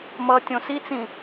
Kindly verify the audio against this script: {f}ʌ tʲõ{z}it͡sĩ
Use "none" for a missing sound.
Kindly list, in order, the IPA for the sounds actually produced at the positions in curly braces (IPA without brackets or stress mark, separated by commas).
m, s